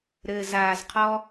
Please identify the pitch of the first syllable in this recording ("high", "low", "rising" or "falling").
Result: low